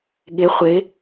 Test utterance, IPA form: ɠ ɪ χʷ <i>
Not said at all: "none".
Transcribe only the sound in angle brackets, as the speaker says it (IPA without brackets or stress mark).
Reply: ɪ